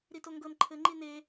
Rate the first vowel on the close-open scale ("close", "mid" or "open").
close